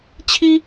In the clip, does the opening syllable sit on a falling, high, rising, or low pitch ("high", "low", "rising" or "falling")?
high